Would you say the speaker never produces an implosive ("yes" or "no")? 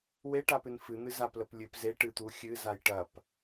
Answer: yes